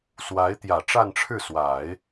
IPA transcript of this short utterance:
s w a˧˥ ɪ̯ t̪ j ä˨˩ ʈ͡ʂ a˥˧ n ʈ͡ʂʰ ɻ̩˥˩ s w a˨˩˦ ɪ̯

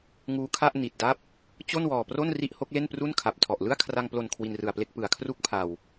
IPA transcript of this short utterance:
ŋ uː˦˥ kʰ a˥˩ ʔ n i˨˩ t̚ d a˥˩ p̚ | t͡ɕ o˥˩ n w ɔː˨˩ p r o˥˩ n r i˥˩ ʔ h o˦˥ k̚ l e˥˩ n p r u˥˩ n kʰ a˨˩ p̚ tʰ ɔ˨˩ ʔ l ɯ˥˩ a̯ kʰ r a˧ ŋ p l o˨˩ n kʰ w i˧ n r ɯ˨˩ a̯ p l e˥˩ k̚ p ɯ˩˦ a̯ kʰ r u˦˥ k̚ pʰ a˨˩ w

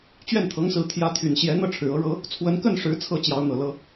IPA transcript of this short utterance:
t͡ɕ ɥ ɛ˥˩ n t̪ʰ ɤ˧˥ ŋ s ɹ̩˧˥ t̪ʰ j ä˧˥ t̪ʰ y˨˩ n ɕ j ɛ˧˥ n̪ ɤ˥˩ ʈ͡ʂʰ ɻ̩˨˩ ɤ˧˥ ɻ ɤ˧˥ | t͡sʰ w ə˧˥ n k ə˥˩ n ʂ ɻ̩˧˥ t͡sʰ ɤ˥ t͡ɕ j ɑ˧˥ ʊ̯ n̪ ɤ˨˩ l ɤ˥

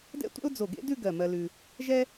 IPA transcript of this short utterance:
d ɛ̰˥ tʷ ɛ̰˥ ʊ̯ d͡z o˧˩ ɡ ḛ˥ d ʉ˥˧ ɡ ɜ˧˩ m ɜ˧ l ʉ˧ | ʒ ɛ˥

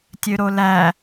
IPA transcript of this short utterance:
tʲ ø ɾ o l æ

